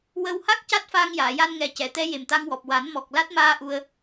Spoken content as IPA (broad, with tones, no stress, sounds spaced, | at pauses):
w ə˧ w h a˦˥ k̚ c a˦˥ t̚ f aː˧ ŋ j aː˨˩˨ j a˧ n ŋ ɛ˨˩ c ɛ˨˩˨ t̪ ɛ˧˥ j e˨˩ m t̪ a˧ ŋ w ɔ˨˩ p̚ w a˨˩˦ n m ɔ˨˩ k̚ l a˦˥ t̚ m aː˧ ʔ u˧ ə̯